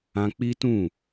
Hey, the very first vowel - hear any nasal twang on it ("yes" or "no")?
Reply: yes